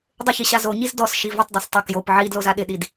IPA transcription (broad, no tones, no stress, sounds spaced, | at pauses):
dˤ ʊ ç i ɕ a z o ɲ i z d ɔ s ʃ i v ɪ tˤ dˤ a s tˤ ʊ k j o p ʕ i d l o z a ɗ ɪ ɗ i d